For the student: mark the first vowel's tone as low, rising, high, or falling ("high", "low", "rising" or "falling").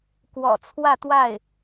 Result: low